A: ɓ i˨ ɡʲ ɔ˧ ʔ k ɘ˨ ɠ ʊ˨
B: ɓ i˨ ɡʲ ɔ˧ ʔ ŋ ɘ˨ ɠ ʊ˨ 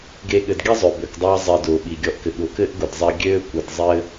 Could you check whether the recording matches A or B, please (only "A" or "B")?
A